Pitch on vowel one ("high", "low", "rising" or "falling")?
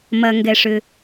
low